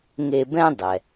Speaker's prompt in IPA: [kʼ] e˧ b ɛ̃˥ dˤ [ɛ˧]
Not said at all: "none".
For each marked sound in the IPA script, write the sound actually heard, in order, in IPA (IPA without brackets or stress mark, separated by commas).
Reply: ŋ, ɛ˩